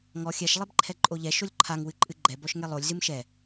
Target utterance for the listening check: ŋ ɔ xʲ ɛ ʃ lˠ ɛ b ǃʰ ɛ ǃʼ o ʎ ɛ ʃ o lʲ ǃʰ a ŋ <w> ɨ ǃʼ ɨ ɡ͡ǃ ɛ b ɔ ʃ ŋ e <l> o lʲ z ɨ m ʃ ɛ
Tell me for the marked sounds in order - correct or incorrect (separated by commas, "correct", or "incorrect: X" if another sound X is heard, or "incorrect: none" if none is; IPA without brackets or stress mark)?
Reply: correct, incorrect: lˠ